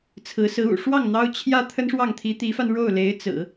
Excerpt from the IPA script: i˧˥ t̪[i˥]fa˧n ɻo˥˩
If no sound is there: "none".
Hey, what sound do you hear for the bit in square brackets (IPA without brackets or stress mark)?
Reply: i˧˥